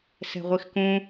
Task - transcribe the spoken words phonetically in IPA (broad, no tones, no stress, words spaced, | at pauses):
sɛ̤ʁʷixkũ